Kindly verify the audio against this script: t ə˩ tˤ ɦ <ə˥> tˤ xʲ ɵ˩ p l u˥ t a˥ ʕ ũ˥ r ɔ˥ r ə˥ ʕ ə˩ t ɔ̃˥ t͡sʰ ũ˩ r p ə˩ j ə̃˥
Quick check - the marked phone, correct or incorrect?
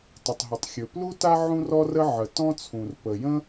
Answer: incorrect